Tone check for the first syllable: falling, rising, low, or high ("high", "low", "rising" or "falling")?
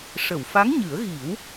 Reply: low